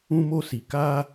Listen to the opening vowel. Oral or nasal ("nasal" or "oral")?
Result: nasal